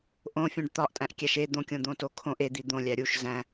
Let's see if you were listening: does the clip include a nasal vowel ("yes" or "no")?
yes